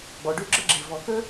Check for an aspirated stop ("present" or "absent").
absent